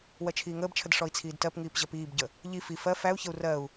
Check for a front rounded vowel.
absent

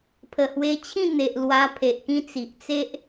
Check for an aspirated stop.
present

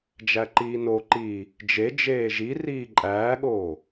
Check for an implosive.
present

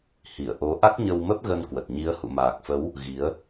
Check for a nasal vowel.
absent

